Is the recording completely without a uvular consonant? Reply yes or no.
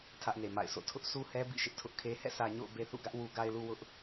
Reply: yes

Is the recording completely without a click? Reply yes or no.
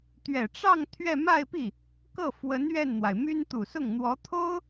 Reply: yes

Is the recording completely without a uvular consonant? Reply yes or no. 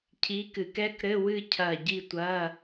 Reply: yes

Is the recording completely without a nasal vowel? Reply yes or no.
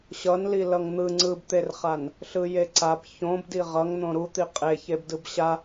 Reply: no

